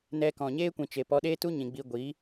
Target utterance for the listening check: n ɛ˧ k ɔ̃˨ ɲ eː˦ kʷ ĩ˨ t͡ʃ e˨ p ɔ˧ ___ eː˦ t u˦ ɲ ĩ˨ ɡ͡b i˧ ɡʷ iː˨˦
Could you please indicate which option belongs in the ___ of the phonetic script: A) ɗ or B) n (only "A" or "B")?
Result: A